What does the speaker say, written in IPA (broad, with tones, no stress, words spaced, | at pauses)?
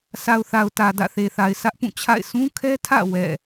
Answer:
sa˨ʊ̯θa˨ʊ̯ tä˨dä̰˦˨ θe˨θa˨ɪ̯ sʰä˦ʔpũ˦˨ t͡ɕʰa̰˦˨ɪ̯ sũ˦kʰɛ˦tʰä̰˦˨ wɛ̰˦˨